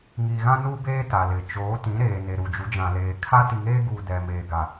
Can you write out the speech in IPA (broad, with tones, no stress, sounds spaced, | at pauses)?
ŋ iː˨ ɣ ã˦ n uː˦ b eː˦ t a˨ l ɪ˨˦ t͡ʃ oː˨˦ t ĩ˨˦ ɾ eː˨ n e˨ ɾ u˨ d͡ʒ u˨˦ d͡ʒ ã˨ l eː˨ kʰ a˦ t i˨ ŋ eː˦ ɡ uː˨ d ɛ˨ m eː˨ ɡ a˨